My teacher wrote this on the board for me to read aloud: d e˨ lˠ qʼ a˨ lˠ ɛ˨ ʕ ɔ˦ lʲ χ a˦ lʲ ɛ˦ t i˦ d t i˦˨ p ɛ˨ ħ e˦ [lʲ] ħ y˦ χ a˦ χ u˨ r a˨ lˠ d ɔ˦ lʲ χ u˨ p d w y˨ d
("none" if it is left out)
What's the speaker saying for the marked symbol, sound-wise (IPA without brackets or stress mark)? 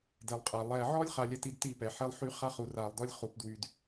lˠ